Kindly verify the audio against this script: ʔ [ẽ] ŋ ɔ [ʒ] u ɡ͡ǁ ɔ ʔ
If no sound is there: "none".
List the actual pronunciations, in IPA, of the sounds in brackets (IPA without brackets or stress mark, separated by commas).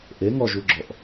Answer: e, ʒ